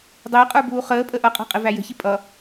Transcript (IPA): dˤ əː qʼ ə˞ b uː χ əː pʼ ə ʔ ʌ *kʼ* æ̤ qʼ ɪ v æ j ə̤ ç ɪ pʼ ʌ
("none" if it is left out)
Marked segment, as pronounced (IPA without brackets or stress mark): qʼ